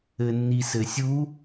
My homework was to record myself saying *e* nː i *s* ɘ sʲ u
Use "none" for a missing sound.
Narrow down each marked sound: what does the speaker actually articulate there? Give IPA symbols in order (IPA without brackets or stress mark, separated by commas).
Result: ɘ, s